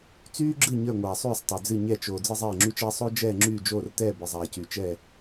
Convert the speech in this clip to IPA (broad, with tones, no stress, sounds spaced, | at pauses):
t͡s yː˥ ɡ͡ǁ ɨ˥˨ ɲ ə˞˥˨ ŋʷ aː˨ sˤ yː˥˨ sˤ tˤ y˨ d͡z ɨ˥˨ ɲ ɛ˥˨ t͡ʃ oː˨ d͡z ɨ˥ zˤ ɛː˥˨ ŋ͡ǁ y˥ t͡ʃ ɛː˥ sˤ o˥ d͡ʒ ɛː˥˨ ŋ͡ǁ yː˥˨ d͡ʒ oː˥˨ r t ɛː˥˨ b ɨ˨ zˤ aː˨ c y˨ t͡ʃ ɛ˥˨